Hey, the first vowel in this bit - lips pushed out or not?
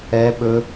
no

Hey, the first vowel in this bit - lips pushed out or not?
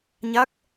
no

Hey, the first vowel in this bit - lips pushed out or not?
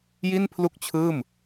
no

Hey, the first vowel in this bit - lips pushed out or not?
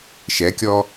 no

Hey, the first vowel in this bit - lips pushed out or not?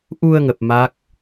yes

